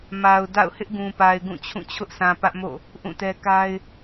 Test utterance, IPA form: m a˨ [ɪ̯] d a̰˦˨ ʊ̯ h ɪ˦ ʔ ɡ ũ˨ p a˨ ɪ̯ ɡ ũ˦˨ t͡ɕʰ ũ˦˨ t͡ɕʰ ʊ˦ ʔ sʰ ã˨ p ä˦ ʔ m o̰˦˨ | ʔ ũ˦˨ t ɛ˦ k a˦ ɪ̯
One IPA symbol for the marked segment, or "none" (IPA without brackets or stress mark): ʊ̯